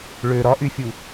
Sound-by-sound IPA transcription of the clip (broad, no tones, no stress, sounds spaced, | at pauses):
ɭ ø ɾ ɒ ʔ y fʲ u